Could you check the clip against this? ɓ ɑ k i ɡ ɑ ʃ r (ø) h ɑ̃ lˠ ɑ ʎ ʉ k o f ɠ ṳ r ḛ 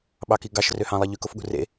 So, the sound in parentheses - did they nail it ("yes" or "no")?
yes